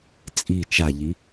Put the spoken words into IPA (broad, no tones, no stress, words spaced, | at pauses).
t͡sʼi t͡ʃaʎi